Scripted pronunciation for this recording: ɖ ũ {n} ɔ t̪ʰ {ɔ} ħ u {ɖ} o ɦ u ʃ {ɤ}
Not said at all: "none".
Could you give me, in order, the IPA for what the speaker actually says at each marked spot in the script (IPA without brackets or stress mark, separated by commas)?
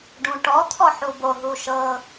ʈ, ɔ, b, ɤ